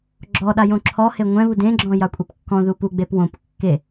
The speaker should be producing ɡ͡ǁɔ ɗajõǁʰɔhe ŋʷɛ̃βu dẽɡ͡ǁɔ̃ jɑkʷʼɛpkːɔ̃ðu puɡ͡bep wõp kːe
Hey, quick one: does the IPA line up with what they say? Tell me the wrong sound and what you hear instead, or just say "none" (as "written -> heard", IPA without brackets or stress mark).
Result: none